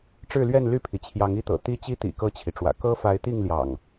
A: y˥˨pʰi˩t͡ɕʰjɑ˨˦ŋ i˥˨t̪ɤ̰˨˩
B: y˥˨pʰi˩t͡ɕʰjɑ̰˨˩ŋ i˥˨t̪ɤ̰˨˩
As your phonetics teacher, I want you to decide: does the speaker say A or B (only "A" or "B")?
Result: A